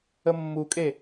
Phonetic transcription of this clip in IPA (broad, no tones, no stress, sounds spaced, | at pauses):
ə mː u kʼ e